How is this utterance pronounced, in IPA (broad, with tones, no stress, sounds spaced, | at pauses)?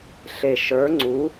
ɬ e˨˩ ʃ ə˞˨˥ ŋ͡ǀ u˨˥